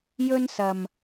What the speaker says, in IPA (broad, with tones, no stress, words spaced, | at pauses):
jɵ˥nsɐ˧m